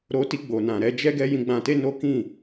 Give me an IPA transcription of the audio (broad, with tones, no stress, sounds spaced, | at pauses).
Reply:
ɾ o˧ t i˧ ɡ͡b o˨ n ã˨ ɾ ɛ˧ d͡ʒ ɛ˧ ɡ ɛ˧ j ĩ˧ ɡ͡b ã˧ t e˦ n o˦ k ĩ˦˨